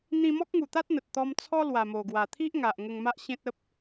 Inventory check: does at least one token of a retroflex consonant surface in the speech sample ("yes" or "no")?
no